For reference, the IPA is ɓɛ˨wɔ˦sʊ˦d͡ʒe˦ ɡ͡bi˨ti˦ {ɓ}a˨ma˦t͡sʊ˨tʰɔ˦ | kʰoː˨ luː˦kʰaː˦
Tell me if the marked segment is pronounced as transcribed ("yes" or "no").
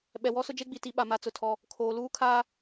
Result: yes